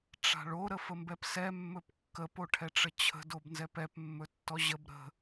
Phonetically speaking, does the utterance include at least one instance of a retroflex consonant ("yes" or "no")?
yes